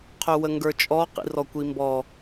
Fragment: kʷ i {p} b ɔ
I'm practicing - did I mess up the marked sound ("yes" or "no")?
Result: yes